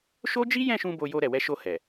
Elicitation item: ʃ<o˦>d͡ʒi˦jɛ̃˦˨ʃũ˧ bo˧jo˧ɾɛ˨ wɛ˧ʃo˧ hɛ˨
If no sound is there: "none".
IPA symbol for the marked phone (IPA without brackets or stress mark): o˦